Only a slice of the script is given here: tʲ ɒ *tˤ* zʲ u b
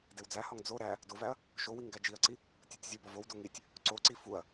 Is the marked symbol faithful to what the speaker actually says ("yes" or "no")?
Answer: no